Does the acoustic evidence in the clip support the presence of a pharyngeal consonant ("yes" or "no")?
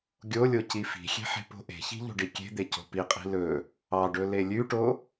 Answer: yes